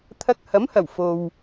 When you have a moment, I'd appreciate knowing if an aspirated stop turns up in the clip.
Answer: yes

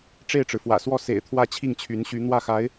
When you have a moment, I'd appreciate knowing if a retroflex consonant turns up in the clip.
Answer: yes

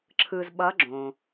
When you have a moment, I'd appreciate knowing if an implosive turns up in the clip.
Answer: yes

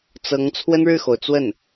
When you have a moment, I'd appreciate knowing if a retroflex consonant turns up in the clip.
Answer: yes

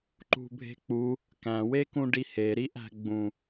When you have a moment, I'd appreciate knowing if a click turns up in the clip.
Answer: yes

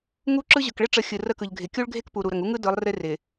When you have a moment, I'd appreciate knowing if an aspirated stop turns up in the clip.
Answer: no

